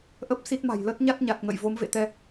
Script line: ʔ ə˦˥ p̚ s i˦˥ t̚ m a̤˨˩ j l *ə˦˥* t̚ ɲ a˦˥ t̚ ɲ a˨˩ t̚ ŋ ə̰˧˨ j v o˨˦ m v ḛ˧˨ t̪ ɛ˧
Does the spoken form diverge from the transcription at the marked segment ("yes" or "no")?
no